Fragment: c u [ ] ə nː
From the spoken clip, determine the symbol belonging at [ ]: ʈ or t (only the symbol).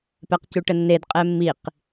ʈ